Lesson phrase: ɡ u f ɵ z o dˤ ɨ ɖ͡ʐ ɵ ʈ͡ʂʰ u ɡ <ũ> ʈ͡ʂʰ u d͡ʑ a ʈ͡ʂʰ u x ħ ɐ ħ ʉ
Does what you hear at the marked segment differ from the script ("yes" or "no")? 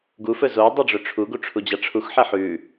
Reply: yes